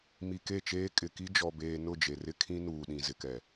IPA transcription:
mi˨ke˦˨t͡ʃeː˦ kʼɪ˨ki˦ d͡ʒɔ˨beː˨ nʊ˦˨d͡ʒe˨rɪ˦ kʰĩ˦ nuː˨ɗĩ˨ zɪ˨kɛ˨

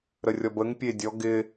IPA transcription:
ɾərʲɔbəŋ pʲedʲɔ ɡɪ

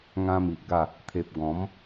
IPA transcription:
ŋã˦mi˨ʔɡa˥˧ | t̪ʰe˨p̚ ɡɔ̃˨˦m

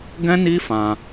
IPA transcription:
ɡɛ̃˦ni˦fã˧

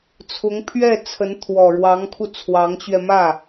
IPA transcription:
t͡sʰʊ˧˥ŋpʰɥɛ˥˩t͡sʰə˧˥n t̪ʰwɔ˨˩ɻwɑ˧˥ŋkʰu˧ t͡sʰwɑ˧˥ŋt͡ɕɥɛ˧mä˥˩

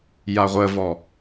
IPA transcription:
jaʁʷəvɔ

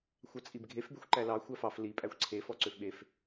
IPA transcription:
xʷɑt͡sʼibɡʱef bexʷǃælɑ xʷæfɑf li pʼæxʷǀʰe fɔǀøfɓef

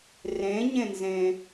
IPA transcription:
rẽɲẽnzẽ

